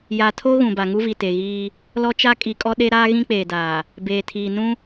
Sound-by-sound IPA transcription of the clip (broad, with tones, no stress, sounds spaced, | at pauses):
j a˨ tʰ o˦ ɣ ũ˨ b a˨ ŋ u˦ v i˨ t e˨ ɣ iː˦ | l ɔ˦ t͡ʃ a˦ kʼ i˨ kʼ ɔ˦ ɗ e˦ ɾ aː˦ ɣ ĩ˦ k͡p eː˨ d aː˨ | b eː˨ tʰ iː˨ n ũ˦